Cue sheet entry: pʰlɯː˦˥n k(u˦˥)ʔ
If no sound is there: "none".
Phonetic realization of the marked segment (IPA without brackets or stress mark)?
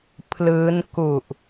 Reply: u˨˩